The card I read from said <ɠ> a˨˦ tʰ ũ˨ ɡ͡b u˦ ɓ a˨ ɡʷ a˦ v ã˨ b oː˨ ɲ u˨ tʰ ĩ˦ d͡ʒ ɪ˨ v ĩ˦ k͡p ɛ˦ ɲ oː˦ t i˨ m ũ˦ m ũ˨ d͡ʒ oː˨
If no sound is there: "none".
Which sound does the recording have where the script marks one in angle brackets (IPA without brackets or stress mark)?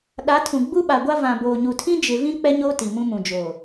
ɗ